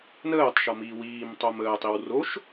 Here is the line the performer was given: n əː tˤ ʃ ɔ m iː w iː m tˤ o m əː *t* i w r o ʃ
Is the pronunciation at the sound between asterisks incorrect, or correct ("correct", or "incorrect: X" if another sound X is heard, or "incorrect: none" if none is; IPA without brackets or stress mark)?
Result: incorrect: tˤ